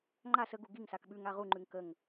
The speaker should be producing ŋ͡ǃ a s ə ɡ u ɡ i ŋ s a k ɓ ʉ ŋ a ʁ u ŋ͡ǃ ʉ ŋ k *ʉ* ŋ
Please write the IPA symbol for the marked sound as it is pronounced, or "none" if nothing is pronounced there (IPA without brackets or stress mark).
ə